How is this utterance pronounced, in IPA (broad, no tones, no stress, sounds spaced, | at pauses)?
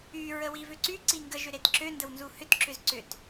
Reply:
y ɹ ə w i v ʏ ǀ y ǀ i ŋ ɡ ə ʒ ʏ ɾ e t ǁ ø n d ə w n z u h ʏ t ǁ ʏ z ǀ ʏ t